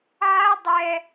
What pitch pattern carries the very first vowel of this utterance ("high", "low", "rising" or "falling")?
high